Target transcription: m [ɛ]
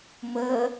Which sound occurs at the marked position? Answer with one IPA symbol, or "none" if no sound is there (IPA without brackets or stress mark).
ə